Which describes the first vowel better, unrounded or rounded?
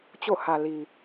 rounded